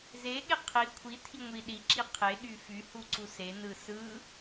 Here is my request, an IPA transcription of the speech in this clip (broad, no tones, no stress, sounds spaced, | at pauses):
z e ɠ e qʰ i kʷʰ i tʰ i ŋʷ i ɗ i ǁ i qʰ e ɠ y f y h u ǀ u s e n ɯ s ɯ